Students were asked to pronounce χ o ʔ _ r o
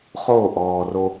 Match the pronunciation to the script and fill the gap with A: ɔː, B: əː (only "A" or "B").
A